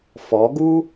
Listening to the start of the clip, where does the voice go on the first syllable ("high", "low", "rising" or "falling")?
rising